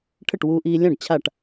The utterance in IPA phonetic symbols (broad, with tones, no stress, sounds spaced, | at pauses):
ʈʰ ə˥˩ ʈ w uː˧ ʔ iː˧ lʲ ã˥˩ ɖ t͡ɕʰ a˥˩ ʈ